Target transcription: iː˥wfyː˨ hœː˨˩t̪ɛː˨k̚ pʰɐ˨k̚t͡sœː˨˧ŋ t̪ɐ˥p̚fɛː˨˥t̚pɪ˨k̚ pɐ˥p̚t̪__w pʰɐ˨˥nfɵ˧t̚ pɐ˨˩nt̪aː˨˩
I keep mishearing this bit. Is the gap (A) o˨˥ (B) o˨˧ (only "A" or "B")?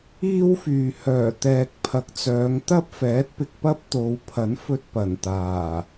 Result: B